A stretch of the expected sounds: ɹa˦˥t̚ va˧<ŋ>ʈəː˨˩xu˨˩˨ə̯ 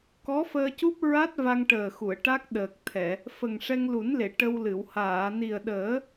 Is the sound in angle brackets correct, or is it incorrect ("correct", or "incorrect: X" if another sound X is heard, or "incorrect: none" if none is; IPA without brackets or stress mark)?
correct